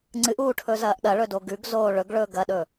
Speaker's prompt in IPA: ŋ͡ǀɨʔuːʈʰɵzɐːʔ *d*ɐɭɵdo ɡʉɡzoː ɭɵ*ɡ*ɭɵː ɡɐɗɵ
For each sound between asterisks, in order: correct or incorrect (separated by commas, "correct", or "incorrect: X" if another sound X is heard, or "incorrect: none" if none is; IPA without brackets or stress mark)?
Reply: incorrect: ɗ, correct